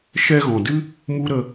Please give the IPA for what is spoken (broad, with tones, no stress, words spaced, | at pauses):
ʃɛ˧ɣɔ̃˨dɨ˦ | mu˦ ɾə˧